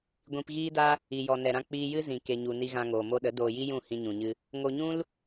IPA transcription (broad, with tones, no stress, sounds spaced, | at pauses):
ɡʷ ĩ˧ p ɣ iː˦ d a˦ | i˨ j ɔ˨ n ɛ˨ ɾ ã˧ k͡p iː˧ j ɨ˦ z ĩ˨ k e˨ ɲ u˨ n i˧ ɣ ã˧ ŋ oː˨ m o˧ ɗ ə˨˦ d oː˧ j i˦ j ũ˦˨ h ĩ˧ ɲ ũ˨ ɲ ɨ˧ | ŋ o˧ ɲ ũ˦ l